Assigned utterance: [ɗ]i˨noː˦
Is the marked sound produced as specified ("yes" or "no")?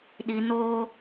yes